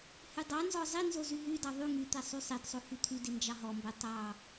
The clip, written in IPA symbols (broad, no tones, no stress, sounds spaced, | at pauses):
h y dˤ ɑ n z ɔ zˤ i n z o z y ɦ y d ɑ ðˤ y ŋ y t̪ ɛ sˤ y sˤ i d sˤ o h y t̪ʰ y d i n d͡ʒ ɑ ɦ ɔ m b ɛ tˤ ɑ